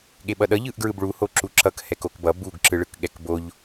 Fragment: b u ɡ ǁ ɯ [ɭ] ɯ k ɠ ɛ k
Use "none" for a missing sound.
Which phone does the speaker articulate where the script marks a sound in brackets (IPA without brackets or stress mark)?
ɭ